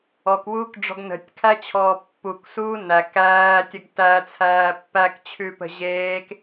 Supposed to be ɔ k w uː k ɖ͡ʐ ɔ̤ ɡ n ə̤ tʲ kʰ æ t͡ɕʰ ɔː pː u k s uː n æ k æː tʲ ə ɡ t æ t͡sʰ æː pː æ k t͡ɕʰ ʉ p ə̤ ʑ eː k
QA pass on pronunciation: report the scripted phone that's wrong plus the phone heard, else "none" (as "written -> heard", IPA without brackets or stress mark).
none